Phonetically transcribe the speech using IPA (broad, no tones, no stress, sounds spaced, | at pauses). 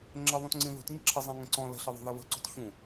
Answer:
ŋ͡ǁ ə ðˤ ũ t ŋ͡ǀ ĩ ð ṳ t ɲ ə̤ ǁʰ ə zˤ ĩ ŋ ə̃ ǀ ɔ̃ l ə̤ ɬ ə ðˤ ṳ ð ɐ β ə̤ ǀ ṳ t ç ũ